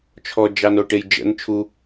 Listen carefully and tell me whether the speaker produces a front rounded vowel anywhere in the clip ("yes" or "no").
no